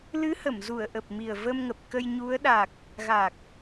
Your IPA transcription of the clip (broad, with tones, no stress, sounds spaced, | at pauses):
l ɨ˨˦ h ə˧˩ m z u˧˩ ə̯ ʔ ə˨˩ p̚ m i˨˩ ə̯ v ə˧ m ŋ ə˨˩ p̚ k ə˧ j ɲ u˨˦ ə̯ ɗ a˨˩ k̚ | ɣ a˨˩ k̚